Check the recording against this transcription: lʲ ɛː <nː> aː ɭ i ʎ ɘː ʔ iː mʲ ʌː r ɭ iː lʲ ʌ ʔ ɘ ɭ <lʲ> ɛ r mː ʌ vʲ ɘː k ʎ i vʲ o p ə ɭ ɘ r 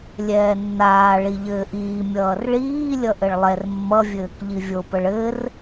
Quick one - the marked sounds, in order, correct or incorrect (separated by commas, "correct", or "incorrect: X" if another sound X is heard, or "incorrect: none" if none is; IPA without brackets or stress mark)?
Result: correct, incorrect: lˠ